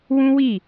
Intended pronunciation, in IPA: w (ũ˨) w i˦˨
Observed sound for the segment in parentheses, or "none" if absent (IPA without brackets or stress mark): ũ˦